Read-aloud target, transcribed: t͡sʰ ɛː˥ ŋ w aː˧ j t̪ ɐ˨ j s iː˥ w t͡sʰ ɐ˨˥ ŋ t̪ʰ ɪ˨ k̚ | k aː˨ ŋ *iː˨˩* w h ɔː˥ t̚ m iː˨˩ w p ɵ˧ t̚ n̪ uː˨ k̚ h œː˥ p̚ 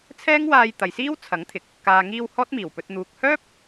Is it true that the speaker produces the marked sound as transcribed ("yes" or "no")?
no